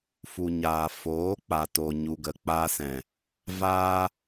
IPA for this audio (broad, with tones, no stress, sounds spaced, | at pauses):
f u˨ ɲ aː˨ f oː˨˦ k͡p a˨ t o˨ ɲ u˨ ɡ ə˨ k͡p a˧ s ɛ̃˨ | v aː˦